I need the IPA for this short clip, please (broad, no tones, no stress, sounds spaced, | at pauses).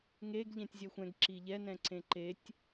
ŋ e ɡ ʎ ɛ̃ tʲ zʲ ɛ xʷ ɛ̃ ɡ ǁ i ʎ ɛ n ɛ̃ ǀ ẽ ǃ e tʲ